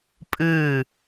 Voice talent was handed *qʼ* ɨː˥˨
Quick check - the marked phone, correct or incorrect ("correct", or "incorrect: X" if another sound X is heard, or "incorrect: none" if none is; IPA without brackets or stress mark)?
incorrect: pʼ